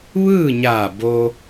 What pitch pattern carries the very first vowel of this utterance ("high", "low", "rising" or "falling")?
falling